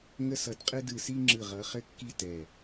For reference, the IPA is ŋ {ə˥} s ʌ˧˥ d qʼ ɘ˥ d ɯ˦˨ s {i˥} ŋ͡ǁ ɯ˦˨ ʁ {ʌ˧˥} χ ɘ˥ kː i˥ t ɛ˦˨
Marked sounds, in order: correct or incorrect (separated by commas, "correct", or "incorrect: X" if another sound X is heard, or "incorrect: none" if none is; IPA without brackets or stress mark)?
correct, correct, correct